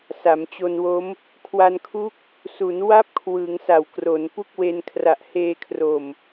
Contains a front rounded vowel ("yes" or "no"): no